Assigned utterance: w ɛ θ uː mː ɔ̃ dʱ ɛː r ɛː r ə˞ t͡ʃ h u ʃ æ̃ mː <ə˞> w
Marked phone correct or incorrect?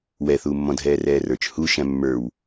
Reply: correct